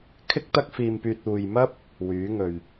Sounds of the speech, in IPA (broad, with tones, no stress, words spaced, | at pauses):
kʰɪ˥k̚t̪ɐ˥k̚fiː˧mpyː˧t̚ uː˨jmɐ˥p̚ | wyː˨˥ŋɵ˨ɥ